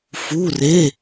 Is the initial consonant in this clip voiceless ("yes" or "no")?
yes